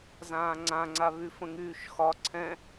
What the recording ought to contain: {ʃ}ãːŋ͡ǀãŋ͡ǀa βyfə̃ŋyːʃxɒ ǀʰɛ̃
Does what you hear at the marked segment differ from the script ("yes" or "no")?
yes